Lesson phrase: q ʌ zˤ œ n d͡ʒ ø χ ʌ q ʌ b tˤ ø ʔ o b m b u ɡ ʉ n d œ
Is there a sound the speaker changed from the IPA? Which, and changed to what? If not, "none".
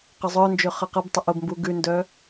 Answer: none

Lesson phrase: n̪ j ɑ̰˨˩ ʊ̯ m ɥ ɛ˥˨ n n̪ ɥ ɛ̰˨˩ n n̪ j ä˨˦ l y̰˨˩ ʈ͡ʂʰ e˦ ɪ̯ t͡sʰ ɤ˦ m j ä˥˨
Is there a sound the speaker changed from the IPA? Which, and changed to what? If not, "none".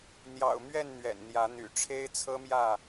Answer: l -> n̪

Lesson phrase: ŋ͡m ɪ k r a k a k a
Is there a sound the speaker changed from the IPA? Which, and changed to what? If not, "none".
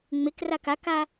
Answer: none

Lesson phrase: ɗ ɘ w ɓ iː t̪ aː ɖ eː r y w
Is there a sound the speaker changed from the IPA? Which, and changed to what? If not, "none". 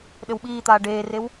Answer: y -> e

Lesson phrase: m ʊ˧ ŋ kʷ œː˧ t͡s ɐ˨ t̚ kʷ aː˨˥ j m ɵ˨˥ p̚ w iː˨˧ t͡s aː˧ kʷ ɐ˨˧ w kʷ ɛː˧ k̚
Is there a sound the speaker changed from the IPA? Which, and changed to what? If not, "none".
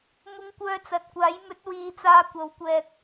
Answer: p̚ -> t̚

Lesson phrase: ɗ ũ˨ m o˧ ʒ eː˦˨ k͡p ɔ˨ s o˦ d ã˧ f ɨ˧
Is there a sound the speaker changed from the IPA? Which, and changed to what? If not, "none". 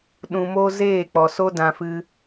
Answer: ʒ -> z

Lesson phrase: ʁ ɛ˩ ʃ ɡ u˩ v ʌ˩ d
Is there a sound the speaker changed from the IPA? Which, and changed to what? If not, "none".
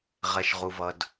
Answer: ɡ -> ʁ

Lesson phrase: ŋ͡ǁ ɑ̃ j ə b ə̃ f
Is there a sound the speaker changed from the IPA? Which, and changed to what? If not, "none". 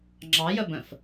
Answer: ɑ̃ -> ɑ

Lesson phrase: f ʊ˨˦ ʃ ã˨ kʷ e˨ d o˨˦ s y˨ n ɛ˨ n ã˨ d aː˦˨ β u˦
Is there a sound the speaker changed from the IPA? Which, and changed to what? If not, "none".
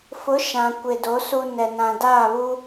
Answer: y˨ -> u˨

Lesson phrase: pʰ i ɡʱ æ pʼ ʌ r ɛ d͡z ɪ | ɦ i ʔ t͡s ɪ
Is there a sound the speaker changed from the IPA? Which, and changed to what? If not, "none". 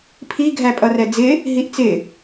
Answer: none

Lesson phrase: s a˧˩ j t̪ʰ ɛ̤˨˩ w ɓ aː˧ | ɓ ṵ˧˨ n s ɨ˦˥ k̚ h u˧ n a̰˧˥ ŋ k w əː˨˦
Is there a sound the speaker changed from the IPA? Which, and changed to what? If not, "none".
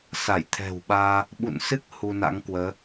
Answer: none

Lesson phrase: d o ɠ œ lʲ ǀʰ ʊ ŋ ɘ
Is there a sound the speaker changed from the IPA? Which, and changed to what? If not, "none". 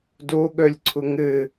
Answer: none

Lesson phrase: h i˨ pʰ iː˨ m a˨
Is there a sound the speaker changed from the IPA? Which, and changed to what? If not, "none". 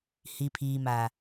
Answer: none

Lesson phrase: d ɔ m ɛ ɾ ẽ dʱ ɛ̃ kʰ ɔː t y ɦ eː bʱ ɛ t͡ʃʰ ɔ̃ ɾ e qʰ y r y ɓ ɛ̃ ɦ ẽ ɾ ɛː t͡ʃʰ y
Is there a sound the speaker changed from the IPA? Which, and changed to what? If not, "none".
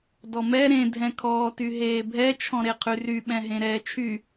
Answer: none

